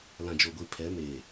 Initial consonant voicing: voiced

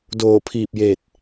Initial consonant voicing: voiced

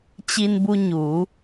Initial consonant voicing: voiceless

